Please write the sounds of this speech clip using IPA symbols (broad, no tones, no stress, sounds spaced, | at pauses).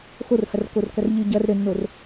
x o r h ɐ r k o r k ɐ r ʎ ɨ ɟ ɐ r ɾ ɘ nː o r